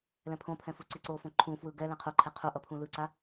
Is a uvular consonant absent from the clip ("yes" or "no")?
no